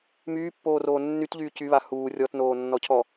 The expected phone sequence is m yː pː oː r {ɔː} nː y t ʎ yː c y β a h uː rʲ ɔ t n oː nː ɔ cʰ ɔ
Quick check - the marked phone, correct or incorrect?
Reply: incorrect